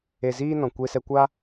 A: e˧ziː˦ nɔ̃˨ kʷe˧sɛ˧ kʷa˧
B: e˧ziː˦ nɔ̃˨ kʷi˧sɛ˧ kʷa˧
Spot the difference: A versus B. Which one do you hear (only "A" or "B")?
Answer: A